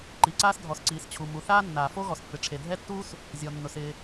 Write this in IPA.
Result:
ǃ i˩ ǀ aː˥ s dʱ ɔ˩ s ǀ iː˩ s t͡ɕʰ u˩ m u˩ θ aː˥ nː aː˩ f o˥ ɣ ɔ˩ s pː ɪ˩ ʈ͡ʂʰ e˩ dʱ ɛ˥ tː uː˥ s | zʲ ɔ˩ nː ʊ˩ s ɪː˩

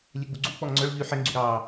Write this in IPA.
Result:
lʲ ɛ ɡ͡b u ɡ͡ǀ u k͡p ɔ ŋ ŋ͡ǀ œ ɭ ʎ y ħ ɛ ŋ ɡ͡ǀ y ɾ ɑ

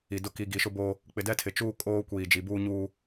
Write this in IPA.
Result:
i˨ d ʊ˦˨ k i˨ ɡ i˨ ʃ ʊ˦ b oː˦ | k͡p ɪ˨ d ɛ˦ tʰ ɪ˨ t͡ʃ uː˦ kʼ oː˦ kʷ iː˨ d͡ʒ i˨ b uː˦ ɲ uː˦

